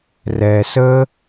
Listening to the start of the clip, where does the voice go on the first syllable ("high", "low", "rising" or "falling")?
low